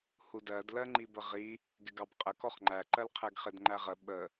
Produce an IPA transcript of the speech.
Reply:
hudɜdlɜŋ͡ǃi bəʁi | ɡɪɡɑbqʼə kɔχŋ͡ǃæǃɜl qʰɛɡχɪdŋ͡ǃæʁə ɓə

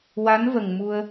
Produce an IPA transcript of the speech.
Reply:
wa˧˥nvə˨˩ŋ mu˧ə̯

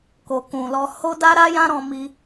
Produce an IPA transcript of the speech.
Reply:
ko˨kũ˨lɔ˧ ho˦da˦ɾa˦jã˦ ɾɔ̃˧mi˧

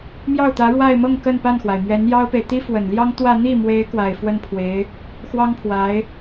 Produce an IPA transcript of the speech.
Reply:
mjɑ˥˩ʊ̯t̪ä˧˥ɻwa˥˧ɪ̯mɤ˥˧ŋ kə˥˧npa˥˩nxwa˩ɪ̯ mɥɛ˧˥njɑ˥ʊ̯pe˨ɪ̯ t̪i˥fwə˨˩nljɑ˥ŋ t̪wä˥˧ n̪i˥˩mwe˧˥ɪ̯ kwa˨˩ɪ̯fwə˥˩npʰwe˧˥ɪ̯ | xwɑ˥ŋpʰwa˧˥ɪ̯

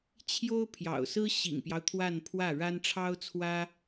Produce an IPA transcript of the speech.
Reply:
t͡ɕʰjo˥ʊ̯pʰjɑ̰˨˩ʊ̯sɹ̩˥ ɕḭ˨˩ŋpjɑ˦ʊ̯ t̪ʰwa˥˧npʰwä˥˩ ɻa˥n ʈ͡ʂʰɑ˥ʊ̯t͡sʰwä˥

